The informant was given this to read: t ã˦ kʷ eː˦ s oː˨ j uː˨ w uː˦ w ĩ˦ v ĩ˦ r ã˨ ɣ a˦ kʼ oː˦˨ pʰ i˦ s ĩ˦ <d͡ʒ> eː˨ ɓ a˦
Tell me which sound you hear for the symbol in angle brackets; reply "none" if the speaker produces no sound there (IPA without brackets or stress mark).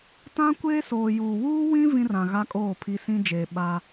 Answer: d͡ʒ